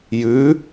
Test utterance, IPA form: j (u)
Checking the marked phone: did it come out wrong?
yes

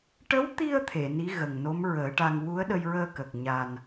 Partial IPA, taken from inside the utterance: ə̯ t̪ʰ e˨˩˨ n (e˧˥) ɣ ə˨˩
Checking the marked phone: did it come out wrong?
yes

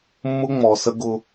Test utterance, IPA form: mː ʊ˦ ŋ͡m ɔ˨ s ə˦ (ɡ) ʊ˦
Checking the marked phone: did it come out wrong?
no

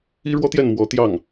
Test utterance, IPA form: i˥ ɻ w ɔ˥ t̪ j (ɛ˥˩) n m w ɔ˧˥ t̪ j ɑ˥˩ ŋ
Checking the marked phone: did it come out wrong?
no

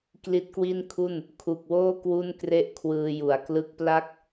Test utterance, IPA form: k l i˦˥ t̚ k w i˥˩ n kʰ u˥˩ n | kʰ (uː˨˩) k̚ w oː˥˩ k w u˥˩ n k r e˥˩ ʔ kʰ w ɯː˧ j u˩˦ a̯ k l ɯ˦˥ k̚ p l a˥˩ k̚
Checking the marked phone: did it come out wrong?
yes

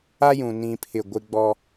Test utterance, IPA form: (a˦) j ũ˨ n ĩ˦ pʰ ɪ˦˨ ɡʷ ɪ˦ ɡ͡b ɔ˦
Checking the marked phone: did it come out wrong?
no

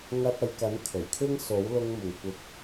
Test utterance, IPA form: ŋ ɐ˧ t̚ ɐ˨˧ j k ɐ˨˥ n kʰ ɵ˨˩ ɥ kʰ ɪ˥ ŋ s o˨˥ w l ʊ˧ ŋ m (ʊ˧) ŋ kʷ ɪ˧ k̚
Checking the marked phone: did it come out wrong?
yes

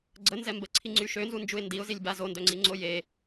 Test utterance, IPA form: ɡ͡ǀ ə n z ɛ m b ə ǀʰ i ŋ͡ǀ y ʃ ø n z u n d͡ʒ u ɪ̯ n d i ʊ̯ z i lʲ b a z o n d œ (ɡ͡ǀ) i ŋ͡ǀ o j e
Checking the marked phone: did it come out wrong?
yes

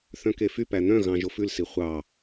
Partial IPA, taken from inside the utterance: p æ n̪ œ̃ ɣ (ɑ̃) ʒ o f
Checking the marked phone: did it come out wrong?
no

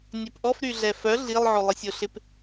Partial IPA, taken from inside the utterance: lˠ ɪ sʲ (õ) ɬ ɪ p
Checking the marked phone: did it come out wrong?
yes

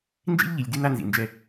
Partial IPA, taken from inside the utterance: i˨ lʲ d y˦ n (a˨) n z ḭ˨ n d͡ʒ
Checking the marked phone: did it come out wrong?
yes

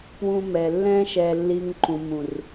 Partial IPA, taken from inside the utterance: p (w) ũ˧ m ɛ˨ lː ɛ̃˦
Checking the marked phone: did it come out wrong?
no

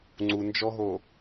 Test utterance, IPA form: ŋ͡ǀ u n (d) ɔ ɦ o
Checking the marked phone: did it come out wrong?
yes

